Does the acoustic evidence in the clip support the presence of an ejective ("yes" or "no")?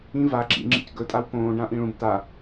yes